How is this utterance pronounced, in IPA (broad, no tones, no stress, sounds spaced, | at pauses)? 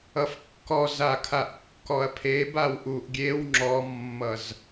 ʌ f kː ɔ z a kʰ a ʔ kː ɔ ɐ̯ pʰ e b a w ʔ u ʔ ɡʲ e w ŋ͡ǁ ɔ mː ʌ z